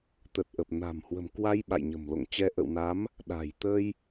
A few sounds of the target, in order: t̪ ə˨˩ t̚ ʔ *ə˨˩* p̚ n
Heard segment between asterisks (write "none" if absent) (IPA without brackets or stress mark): ə˨˩